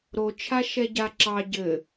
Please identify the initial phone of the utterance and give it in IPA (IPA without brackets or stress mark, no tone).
ɾ